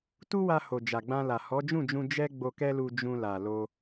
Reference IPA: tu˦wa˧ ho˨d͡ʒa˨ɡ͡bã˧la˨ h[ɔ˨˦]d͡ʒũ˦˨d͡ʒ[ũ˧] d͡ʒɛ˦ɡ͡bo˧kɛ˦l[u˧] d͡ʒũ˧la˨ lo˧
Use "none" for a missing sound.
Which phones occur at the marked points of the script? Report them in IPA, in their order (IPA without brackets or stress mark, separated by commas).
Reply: ɔ˨˦, ũ˧, u˧